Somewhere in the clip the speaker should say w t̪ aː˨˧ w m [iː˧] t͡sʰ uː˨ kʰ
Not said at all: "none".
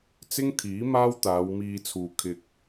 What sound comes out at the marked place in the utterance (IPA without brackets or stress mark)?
iː˧